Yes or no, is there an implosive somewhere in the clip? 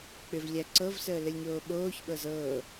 yes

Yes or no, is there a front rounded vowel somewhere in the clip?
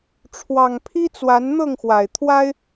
no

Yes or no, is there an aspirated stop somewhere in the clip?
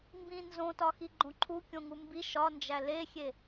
yes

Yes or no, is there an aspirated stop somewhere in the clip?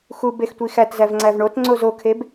yes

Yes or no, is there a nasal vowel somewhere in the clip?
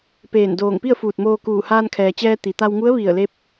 no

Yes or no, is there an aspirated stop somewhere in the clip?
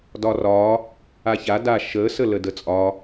no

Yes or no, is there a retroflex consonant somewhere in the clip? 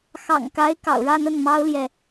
yes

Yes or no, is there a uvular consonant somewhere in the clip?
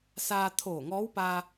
no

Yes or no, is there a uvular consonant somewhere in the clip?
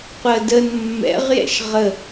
yes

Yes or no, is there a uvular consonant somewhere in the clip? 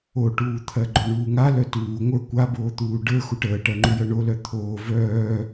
no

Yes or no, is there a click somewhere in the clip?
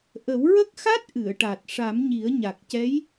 no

